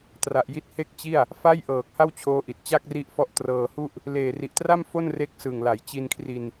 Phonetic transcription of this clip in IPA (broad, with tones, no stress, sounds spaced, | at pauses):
t r a˨˩ ʔ j i˦˥ t̚ h e˥˩ k̚ t͡ɕ i˥˩ a̯ | f a˥˩ j ʔ ɤː˨˩ k̚ h a˥˩ w t͡ɕʰ oː˦˥ ʔ i˨˩ t̚ t͡ɕ a˥˩ k̚ r i˦˥ ʔ f ɔ˦˥ ʔ t r ɤː˧ h u˥˩ ʔ | l eː˨˩ r i˨˩ ʔ t r a˥˩ m f o˥˩ n r e˦˥ k̚ s ɯ˨˩ ŋ l a˩˦ j t͡ɕ i˧ n kʰ r i˧ n